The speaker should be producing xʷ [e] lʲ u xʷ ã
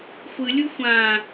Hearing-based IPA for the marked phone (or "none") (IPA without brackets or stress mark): ɨ